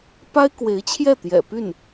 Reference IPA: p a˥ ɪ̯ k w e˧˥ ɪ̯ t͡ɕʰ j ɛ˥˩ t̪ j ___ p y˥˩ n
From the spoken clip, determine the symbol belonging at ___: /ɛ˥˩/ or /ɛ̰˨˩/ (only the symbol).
ɛ̰˨˩